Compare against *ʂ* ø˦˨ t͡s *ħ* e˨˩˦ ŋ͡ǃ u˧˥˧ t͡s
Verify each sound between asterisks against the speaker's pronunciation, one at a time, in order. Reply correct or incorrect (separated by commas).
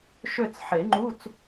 incorrect, correct